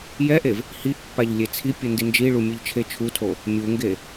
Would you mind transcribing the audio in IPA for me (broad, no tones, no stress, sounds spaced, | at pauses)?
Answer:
j ɛ ʔ e v | h i ʔ pː a ʎ lʲ e t͡sʰ i pʲ u n d i n d͡ʒ i ɭ u mʲ ɯ ʎ t͡ʃʰ e t͡ʃʰ u tʰ o | mʲ u ŋ ɡ e